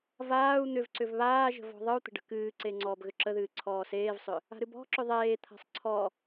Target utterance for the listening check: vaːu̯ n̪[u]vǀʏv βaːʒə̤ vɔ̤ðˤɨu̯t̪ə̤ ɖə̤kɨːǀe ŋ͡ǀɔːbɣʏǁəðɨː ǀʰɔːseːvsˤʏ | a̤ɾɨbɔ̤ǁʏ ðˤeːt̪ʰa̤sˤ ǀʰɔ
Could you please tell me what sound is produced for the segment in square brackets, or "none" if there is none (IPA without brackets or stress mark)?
ʏ